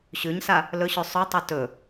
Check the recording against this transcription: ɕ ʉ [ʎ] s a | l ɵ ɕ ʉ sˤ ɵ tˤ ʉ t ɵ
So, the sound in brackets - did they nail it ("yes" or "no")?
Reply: no